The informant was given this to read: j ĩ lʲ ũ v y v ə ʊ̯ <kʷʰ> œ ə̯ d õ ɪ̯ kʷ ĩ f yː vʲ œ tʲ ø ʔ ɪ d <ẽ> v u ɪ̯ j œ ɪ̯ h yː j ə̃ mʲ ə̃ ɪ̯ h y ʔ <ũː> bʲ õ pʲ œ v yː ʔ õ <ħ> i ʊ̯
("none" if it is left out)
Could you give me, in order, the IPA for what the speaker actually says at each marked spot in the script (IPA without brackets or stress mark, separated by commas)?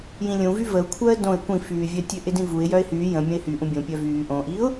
kʷʰ, ĩ, ũ, ʔ